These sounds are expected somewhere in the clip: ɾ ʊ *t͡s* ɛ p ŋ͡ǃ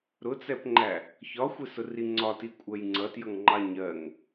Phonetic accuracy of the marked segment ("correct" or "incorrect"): correct